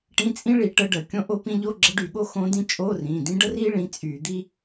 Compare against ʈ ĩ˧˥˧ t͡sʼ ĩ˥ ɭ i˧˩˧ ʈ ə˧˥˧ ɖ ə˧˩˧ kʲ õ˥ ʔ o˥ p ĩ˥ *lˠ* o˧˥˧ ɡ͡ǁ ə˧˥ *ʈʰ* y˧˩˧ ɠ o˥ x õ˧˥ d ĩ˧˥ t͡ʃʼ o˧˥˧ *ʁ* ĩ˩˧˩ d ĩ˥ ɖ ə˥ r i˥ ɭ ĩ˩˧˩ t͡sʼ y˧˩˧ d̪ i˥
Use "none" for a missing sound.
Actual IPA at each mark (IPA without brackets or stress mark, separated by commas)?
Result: ʎ, ɖ, r